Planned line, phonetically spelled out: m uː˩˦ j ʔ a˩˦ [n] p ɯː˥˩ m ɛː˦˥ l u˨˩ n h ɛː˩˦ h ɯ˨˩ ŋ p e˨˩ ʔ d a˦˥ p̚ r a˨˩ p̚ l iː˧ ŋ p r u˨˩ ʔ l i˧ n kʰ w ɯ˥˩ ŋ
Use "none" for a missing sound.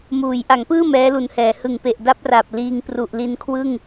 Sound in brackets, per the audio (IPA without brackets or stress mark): ŋ